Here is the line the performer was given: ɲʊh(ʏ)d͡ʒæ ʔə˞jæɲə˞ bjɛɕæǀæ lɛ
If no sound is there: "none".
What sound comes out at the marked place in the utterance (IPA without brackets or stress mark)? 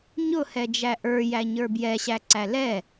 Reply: ɛ